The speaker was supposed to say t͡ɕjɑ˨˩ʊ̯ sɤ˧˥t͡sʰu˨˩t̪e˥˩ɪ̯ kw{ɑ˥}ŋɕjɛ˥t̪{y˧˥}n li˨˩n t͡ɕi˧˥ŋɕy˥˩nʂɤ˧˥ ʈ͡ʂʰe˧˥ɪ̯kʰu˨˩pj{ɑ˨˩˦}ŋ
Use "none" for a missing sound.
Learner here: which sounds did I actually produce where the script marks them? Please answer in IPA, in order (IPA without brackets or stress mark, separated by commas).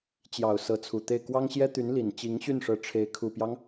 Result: ɑ˥, y˧˥, ɑ˦